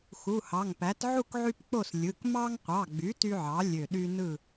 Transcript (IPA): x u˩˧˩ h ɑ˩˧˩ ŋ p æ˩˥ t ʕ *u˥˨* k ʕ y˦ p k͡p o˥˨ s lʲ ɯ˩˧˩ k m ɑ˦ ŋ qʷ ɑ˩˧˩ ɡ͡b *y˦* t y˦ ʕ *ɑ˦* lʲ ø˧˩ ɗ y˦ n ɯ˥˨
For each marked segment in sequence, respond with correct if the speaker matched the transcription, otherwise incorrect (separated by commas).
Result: correct, incorrect, incorrect